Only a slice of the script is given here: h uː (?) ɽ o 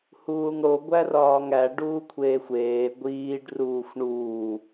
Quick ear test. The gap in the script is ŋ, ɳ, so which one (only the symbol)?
ŋ